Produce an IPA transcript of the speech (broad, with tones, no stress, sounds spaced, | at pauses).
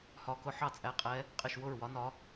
h ɒ˧˥ k ʊ˧˥ ħ ɑ˥˩ t͡sʼ æ˧˥ qʼ ɛ˧˥ | qʼ ɪ˥˩ ʃ w ʊ˥˩ ɹ w ɒ˧˥ n ɒ˧˥